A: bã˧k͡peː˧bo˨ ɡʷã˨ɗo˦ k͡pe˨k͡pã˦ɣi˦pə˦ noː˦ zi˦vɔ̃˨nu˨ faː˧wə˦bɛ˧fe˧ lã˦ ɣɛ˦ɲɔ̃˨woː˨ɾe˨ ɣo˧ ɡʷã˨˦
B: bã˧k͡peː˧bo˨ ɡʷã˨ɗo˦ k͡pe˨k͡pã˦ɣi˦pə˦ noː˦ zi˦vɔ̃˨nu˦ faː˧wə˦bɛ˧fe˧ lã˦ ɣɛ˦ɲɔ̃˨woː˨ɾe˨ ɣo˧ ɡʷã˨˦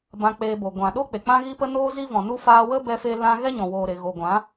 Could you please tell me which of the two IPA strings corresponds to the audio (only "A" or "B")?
B